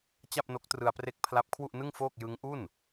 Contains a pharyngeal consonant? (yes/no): no